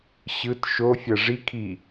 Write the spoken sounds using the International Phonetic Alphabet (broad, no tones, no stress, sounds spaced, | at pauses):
ɕ ɯ t ʃ o fʲ ɐ ʐ i kʰ i